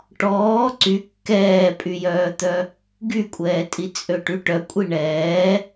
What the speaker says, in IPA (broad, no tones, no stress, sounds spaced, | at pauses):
ʈ ɔː ǀ y kː ɛː pʼ y j œː t̪ œ | ɡ y kʷʼ ɛː tʼ i t͡sʼ ø ʈ y ʈ œ kʷʼ i ɳ ɛː